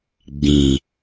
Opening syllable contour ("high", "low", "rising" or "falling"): low